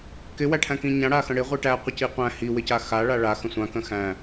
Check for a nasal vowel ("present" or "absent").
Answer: present